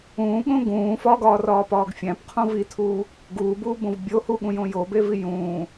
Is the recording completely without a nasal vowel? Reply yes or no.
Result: no